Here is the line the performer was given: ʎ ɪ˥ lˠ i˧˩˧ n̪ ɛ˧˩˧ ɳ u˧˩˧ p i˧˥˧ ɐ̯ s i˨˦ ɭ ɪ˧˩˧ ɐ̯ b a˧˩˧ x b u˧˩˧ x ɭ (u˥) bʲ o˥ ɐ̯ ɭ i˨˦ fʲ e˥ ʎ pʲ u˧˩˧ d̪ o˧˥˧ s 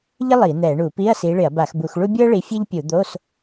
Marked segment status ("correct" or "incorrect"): correct